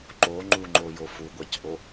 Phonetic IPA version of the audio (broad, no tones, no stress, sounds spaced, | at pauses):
ǃ o ŋ͡ǃ u ŋ͡ǃ o j o f u ɡʷ ɑ c ʔ o